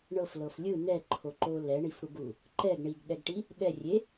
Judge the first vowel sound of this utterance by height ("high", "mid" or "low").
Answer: mid